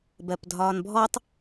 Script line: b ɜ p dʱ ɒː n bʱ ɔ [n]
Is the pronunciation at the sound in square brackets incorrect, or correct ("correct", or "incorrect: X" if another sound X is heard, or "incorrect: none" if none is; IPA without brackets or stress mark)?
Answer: incorrect: tˤ